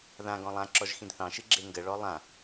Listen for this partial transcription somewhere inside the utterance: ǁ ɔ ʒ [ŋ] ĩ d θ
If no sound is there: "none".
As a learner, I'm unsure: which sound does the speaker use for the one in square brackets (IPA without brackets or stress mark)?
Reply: x